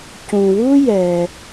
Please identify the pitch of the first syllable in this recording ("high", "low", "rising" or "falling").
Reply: low